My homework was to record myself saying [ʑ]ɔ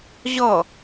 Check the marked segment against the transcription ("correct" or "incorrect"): correct